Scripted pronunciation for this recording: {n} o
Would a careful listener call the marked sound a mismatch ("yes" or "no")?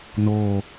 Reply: no